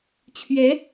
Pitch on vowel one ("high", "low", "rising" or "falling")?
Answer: rising